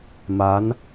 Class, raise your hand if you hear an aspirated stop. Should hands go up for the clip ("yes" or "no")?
no